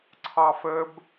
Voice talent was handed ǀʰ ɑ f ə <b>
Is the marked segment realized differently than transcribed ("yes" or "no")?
no